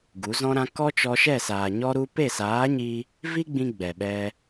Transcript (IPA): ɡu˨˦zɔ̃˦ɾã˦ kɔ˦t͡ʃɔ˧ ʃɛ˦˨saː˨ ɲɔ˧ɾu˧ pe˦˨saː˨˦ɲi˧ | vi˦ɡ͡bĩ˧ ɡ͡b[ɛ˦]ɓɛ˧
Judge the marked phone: incorrect: ɛ˨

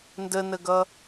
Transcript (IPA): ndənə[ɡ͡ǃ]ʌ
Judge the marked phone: incorrect: ɡ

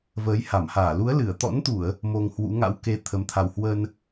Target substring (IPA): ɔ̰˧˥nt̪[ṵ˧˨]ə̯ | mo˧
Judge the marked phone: incorrect: u˧˩˨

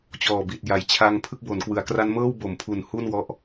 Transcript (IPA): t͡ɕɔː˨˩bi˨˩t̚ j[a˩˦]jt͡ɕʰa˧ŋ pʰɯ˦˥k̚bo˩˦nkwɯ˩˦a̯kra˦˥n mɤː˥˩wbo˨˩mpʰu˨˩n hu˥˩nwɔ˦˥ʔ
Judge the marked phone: correct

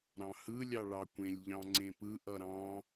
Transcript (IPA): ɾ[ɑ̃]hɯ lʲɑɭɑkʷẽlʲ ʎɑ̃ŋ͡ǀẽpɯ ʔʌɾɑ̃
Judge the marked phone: correct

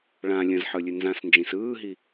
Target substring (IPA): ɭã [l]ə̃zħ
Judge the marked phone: incorrect: lʲ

